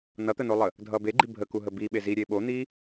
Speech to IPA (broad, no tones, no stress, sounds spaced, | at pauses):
n ʌ t̪ ə n o lˠ ə | dʱ ʌ b e ɡ͡ǃ i bʱ ə k u ɦ ə b i ɓ e z i ɾʲ e ɓ o n̪ i